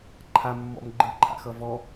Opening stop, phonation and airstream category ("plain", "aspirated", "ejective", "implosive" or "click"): click